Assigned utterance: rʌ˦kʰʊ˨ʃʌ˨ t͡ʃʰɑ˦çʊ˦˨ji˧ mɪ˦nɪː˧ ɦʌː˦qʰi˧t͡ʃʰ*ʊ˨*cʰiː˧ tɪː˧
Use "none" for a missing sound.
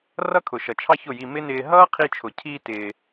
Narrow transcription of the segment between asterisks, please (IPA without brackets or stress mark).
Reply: ʊ˨